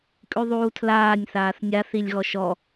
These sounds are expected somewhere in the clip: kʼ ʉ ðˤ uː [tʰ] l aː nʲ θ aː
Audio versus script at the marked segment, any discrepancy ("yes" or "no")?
no